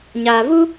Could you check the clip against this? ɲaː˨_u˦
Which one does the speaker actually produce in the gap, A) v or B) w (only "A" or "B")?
A